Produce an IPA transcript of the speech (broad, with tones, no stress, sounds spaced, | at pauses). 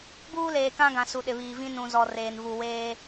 b uː˦ l eː˨ k ã˦ ɡ ã˨ s u˨ ɗ ɪ˨ β iː˨ v ĩ˦ n ũ˨ z ɔ˨ r eː˨ n v u˨ w eː˦